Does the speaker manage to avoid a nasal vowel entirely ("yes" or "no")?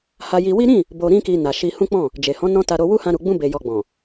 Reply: no